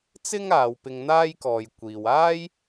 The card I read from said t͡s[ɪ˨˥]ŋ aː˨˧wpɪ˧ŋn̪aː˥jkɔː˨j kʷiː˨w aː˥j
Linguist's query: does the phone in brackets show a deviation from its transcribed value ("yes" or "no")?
yes